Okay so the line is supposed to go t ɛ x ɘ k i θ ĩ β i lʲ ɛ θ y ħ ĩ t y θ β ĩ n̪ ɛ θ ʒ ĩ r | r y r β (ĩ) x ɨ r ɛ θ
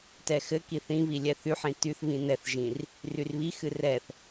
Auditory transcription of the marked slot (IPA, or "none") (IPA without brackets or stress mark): i